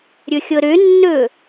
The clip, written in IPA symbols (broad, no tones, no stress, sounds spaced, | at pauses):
ɾʲ ɵ xʲ ɤ ɾ ø nː ɵ